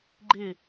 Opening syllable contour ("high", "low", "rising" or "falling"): falling